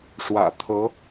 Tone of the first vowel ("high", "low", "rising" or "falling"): low